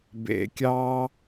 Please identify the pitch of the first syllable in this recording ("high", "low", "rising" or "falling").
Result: low